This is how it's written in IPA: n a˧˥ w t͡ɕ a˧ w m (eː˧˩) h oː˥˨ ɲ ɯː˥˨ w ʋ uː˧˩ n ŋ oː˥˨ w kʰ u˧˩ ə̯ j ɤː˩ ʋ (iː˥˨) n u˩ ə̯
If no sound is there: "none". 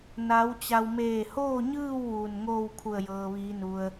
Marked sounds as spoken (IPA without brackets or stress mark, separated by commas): eː˧˩, iː˩˧